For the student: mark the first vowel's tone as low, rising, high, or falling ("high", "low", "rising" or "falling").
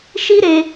high